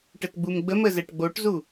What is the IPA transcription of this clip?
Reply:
ʈətɡ͡bumɡ͡bəmə zɛʈɡ͡boʈzu

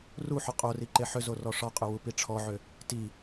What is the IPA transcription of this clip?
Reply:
ruħʏ qʼori ǃeħʏzo rɔʂɒqʼʏ wupiʈ͡ʂʰɔʕʏ | ti

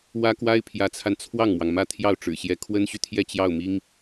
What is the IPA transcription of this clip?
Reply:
wä˥kwa˥ɪ̯ pʰjä˧˥t͡sʰa˧n t͡sʰwɑ˥˩ŋmwɑ˩ŋmä˥˧ t̪ʰjɑ˥˩ʊ̯ʈ͡ʂɻ̩˨˩ɕjɛ˧˥ kʰwə˥nɕy˨t̪ʰjɛ˥˧ t͡ɕjɑ˥˩ʊ̯mi˥ŋ

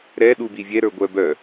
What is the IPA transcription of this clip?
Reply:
ɾɛ ɗubivʲɛ ɾə˞ɡʷœbœ

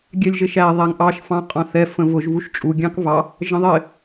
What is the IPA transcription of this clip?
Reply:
ɡʲɛlʲʒɪʃæ ðˤæŋʔɑʃ fɑ̃qʼɑ̃θɛ fə̃vʊʒ vuʃt͡ʃʼu ɡʲɑ̃kvɑ | ʒə̃ðˤɪ

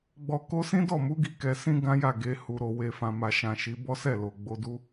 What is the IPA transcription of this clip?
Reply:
ɡ͡bɔ˨ko˧ sĩ˦dɔ˦˨mu˨˦ ɡi˧kɛ˨ sĩ˧ ɡã˦ja˦˨ɡe˨˦ hu˧ɾo˧ we˨fã˨ma˨ʃã˨ ʃi˨˦bɔ˦sɛ˦˨lo˨ ɡ͡bo˧du˦

